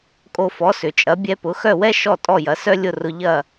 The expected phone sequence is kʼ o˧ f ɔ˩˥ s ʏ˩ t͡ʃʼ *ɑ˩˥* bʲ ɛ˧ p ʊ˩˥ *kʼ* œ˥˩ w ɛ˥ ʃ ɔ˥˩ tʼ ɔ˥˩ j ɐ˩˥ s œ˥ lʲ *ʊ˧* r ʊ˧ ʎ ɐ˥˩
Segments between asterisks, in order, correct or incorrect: incorrect: ɐ˩˥, incorrect: x, incorrect: ʊ˥˩

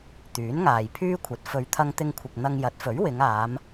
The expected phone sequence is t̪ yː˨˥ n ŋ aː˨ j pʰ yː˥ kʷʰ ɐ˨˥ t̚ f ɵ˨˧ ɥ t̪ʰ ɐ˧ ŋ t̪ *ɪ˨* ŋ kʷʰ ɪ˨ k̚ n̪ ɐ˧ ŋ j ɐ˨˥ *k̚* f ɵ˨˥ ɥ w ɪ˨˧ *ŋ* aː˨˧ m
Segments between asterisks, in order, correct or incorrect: incorrect: ɪ˧, incorrect: t̚, correct

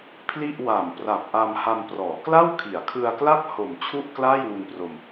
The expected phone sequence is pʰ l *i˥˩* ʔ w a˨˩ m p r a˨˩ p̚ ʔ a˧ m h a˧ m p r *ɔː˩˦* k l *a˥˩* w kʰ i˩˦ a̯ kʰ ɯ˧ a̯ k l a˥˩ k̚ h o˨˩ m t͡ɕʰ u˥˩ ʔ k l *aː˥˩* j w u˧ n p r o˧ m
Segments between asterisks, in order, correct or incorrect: correct, correct, correct, correct

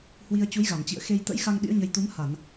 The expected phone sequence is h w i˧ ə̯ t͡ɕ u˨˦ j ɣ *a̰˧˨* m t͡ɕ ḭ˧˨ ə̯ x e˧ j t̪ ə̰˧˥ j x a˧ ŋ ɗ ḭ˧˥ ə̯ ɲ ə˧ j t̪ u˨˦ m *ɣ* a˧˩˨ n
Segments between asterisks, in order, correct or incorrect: incorrect: a˧˩, incorrect: h

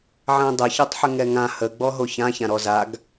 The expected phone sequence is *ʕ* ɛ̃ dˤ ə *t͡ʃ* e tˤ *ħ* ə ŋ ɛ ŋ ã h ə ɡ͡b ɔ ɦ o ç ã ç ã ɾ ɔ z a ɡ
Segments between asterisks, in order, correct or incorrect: correct, incorrect: ç, correct

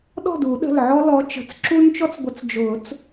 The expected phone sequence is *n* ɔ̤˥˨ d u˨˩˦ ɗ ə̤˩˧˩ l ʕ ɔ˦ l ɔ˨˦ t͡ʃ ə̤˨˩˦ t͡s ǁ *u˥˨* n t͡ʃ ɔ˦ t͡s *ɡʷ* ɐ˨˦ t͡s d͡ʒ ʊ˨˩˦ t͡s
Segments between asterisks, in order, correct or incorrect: incorrect: ɗ, incorrect: u˦, correct

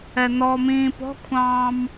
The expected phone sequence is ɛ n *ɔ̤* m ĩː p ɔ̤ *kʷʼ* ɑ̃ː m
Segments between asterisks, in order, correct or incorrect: incorrect: ɔ, incorrect: kʷʰ

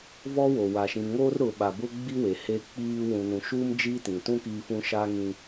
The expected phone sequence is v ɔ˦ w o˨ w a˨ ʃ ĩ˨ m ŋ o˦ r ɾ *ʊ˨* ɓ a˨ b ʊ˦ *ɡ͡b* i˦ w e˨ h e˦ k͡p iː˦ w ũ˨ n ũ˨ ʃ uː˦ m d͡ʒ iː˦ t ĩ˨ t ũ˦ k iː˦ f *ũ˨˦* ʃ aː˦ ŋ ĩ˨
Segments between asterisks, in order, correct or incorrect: correct, correct, incorrect: ũ˦

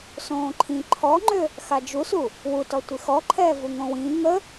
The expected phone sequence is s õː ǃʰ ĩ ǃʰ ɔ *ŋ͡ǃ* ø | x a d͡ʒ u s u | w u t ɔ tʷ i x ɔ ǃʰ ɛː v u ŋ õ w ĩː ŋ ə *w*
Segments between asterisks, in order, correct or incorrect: correct, incorrect: none

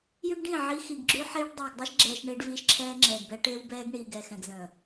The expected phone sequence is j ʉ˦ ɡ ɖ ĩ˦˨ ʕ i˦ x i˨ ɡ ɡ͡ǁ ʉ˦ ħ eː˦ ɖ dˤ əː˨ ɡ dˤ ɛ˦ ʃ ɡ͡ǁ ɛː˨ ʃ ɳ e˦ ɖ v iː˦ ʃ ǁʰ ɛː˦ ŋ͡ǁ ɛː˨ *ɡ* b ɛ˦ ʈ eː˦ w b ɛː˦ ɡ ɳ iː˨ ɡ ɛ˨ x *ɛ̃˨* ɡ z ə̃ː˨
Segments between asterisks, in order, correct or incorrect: correct, correct

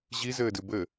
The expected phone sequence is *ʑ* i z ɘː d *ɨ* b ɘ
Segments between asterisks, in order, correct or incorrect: correct, correct

